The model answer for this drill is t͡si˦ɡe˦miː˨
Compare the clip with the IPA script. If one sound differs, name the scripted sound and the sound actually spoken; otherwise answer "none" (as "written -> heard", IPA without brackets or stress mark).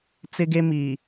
i˦ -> ɪ˦